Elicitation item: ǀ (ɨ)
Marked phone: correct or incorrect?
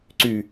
incorrect